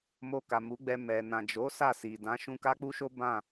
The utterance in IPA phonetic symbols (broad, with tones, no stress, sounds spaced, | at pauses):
m o˧ k a˨ m u˨˦ ɡ͡b ɛ˧ m ɛ˨ n ã˨ d͡ʒ o˨˦ s a˦˨ s i˨ d ã˨˦ ʃ ũ˧ k a˦ k͡p u˦ ʃ o˦ b ã˦˨